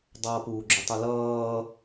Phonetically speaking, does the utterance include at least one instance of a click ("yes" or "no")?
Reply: yes